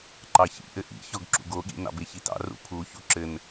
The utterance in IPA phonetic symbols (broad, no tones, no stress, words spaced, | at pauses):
ǃɑçḭ ʔɘʔḭçɔɡ ǁṵɡoɠḭ nɑ̰beçitɑ̰ rṵpʰuçu ǁɘn